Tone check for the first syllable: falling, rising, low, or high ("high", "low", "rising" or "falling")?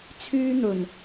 high